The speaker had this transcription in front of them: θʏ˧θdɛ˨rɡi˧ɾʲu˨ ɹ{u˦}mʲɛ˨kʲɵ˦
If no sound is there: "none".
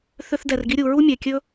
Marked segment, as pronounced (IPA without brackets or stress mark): u˦